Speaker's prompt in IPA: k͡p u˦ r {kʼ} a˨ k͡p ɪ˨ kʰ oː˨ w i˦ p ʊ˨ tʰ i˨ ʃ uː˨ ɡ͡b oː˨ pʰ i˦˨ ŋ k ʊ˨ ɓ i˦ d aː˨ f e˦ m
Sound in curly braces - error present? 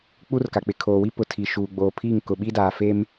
yes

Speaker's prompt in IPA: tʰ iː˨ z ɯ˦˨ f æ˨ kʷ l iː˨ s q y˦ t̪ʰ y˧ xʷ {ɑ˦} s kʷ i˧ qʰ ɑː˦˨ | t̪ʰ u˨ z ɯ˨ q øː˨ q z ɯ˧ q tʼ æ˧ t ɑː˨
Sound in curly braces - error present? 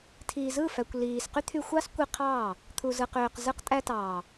no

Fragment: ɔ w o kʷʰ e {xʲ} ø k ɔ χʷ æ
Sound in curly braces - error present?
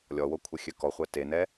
no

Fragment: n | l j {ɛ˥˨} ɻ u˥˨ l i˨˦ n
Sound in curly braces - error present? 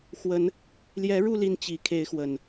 yes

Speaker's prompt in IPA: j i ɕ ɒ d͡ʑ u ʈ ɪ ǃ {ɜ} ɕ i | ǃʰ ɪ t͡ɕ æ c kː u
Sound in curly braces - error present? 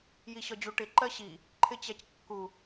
no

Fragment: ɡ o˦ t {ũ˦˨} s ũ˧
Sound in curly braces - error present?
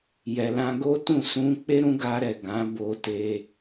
no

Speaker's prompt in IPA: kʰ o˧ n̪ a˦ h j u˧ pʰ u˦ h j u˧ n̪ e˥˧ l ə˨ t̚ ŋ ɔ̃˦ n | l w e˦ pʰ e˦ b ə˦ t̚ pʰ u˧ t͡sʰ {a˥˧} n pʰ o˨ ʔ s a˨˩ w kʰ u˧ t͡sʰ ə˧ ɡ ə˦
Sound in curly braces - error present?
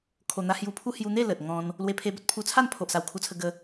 no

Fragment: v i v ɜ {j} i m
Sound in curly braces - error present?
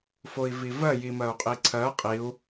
no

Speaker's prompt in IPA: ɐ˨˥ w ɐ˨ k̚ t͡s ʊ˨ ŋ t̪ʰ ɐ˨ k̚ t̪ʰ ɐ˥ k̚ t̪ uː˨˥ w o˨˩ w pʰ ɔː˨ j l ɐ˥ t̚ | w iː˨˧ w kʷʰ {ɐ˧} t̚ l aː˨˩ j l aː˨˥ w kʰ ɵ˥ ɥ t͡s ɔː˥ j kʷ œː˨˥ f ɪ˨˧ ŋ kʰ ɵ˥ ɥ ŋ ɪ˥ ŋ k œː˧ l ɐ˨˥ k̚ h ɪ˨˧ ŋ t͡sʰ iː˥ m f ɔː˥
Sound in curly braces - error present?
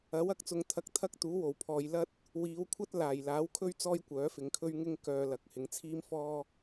yes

